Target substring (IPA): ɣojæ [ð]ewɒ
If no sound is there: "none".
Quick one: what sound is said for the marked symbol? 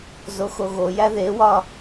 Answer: ð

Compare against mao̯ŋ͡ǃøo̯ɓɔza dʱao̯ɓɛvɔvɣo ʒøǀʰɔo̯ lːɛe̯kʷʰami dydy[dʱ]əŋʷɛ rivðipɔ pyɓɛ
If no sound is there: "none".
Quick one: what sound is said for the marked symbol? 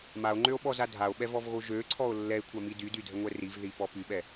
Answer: dʱ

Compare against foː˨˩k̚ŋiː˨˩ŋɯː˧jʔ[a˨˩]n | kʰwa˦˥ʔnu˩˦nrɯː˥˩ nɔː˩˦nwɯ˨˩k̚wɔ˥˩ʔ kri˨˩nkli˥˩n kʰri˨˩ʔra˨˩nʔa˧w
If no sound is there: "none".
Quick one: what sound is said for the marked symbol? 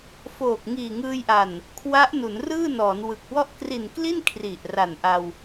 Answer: a˨˩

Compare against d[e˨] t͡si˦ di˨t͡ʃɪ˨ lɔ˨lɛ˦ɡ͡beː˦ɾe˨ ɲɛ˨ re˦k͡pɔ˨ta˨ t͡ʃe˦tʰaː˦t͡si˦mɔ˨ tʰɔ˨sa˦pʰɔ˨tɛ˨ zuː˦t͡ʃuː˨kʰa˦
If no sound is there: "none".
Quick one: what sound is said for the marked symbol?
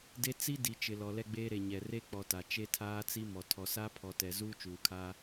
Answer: e˦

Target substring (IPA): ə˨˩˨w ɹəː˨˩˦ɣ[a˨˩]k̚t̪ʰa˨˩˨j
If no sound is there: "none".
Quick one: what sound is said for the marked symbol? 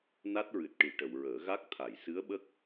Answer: a˦˥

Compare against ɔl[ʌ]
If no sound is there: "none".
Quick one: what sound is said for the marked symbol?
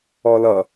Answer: ʌ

